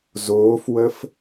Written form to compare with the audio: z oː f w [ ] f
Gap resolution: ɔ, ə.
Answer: ə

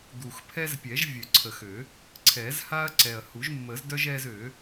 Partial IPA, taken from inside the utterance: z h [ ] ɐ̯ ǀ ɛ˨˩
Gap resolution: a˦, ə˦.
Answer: a˦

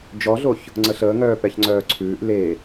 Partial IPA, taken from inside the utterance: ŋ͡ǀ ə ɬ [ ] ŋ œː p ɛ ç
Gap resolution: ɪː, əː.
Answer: əː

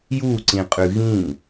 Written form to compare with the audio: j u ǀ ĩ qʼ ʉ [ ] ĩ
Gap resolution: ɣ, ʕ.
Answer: ɣ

